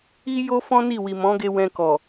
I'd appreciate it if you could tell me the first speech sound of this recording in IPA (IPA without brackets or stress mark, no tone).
i